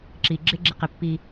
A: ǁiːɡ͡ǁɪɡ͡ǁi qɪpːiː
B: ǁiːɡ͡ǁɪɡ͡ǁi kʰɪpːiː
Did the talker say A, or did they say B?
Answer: A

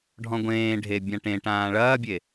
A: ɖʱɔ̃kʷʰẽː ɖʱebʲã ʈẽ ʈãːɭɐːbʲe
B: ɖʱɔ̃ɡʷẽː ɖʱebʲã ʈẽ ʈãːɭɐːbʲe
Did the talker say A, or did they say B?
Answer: B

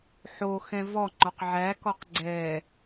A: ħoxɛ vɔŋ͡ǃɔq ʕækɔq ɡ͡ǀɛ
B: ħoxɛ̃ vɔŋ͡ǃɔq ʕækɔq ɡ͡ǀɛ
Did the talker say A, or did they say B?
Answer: B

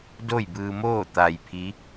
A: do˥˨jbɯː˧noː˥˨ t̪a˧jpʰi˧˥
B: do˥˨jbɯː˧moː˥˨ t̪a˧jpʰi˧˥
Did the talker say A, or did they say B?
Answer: B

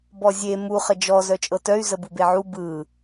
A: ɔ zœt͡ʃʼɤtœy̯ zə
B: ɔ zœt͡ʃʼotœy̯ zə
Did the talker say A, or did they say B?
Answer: A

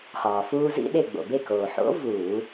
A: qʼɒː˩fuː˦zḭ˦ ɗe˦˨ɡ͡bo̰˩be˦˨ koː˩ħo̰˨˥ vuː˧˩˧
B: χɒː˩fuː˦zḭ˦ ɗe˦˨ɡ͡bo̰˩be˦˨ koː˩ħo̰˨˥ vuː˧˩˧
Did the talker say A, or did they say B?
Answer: B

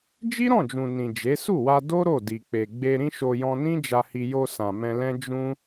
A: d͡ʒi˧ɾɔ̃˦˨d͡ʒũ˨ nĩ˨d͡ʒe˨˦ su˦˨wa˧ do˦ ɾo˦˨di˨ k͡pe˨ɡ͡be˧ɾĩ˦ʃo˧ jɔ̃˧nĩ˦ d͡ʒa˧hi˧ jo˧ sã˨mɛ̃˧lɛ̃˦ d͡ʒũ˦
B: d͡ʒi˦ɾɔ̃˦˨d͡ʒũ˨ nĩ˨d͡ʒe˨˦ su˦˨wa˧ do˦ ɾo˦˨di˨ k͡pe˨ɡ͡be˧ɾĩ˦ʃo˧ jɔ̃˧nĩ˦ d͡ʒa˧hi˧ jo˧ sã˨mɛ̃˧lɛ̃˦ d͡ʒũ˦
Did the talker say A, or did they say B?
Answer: B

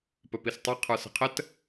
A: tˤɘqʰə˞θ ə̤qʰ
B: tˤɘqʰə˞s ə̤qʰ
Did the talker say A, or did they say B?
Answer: B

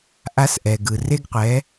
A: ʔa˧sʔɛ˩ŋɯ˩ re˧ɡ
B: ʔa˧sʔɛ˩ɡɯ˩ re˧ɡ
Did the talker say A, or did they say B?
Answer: B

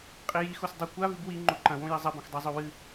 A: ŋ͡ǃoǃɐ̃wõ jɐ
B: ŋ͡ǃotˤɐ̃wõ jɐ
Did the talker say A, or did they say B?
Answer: A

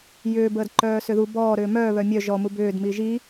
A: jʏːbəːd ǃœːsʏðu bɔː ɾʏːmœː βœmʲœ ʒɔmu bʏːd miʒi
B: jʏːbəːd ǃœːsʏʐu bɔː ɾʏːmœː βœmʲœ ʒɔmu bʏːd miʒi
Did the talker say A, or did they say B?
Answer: A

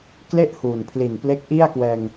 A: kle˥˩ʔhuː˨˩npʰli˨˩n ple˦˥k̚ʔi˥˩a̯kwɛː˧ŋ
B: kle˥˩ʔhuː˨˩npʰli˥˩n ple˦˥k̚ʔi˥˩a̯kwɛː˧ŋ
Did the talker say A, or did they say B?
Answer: A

